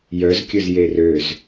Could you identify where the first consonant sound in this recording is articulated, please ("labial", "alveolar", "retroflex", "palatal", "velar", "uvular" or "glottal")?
palatal